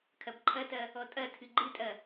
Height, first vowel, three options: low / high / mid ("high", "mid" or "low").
low